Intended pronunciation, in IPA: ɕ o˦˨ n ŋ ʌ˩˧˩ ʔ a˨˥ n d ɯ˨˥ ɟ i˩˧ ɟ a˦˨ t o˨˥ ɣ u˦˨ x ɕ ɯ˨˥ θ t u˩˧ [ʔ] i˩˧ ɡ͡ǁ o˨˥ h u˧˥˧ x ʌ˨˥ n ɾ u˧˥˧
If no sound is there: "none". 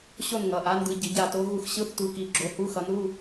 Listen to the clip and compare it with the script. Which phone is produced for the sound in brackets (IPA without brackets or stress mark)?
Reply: k